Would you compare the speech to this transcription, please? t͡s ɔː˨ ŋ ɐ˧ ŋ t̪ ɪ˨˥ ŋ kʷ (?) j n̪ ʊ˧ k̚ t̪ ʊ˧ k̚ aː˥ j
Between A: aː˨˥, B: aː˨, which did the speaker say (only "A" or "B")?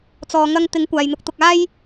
B